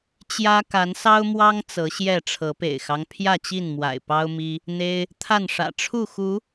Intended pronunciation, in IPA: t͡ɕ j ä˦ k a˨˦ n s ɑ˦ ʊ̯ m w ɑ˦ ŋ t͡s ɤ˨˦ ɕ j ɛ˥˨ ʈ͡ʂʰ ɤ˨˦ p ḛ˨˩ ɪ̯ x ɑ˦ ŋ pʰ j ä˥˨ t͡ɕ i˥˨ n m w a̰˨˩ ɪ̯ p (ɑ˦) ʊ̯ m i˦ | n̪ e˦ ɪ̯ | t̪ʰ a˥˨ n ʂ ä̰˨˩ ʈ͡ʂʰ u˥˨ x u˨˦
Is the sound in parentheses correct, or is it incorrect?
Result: correct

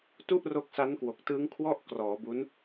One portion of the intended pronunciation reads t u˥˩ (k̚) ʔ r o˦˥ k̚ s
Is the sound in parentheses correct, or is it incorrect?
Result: incorrect: none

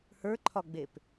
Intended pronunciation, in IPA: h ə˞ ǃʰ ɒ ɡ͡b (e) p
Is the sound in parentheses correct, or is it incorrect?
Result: correct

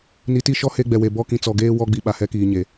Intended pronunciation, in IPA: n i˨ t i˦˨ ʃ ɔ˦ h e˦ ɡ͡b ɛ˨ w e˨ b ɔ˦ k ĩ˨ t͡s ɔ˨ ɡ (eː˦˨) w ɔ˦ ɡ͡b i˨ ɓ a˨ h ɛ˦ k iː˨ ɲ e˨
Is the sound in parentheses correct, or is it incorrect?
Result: incorrect: eː˦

